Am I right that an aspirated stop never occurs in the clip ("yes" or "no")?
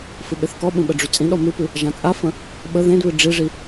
yes